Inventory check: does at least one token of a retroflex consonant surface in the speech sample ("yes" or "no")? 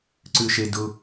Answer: no